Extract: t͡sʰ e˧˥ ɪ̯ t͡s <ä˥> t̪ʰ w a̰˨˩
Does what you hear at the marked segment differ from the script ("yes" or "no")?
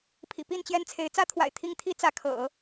no